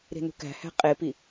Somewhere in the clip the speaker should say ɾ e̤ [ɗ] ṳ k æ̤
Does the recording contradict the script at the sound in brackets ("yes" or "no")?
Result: yes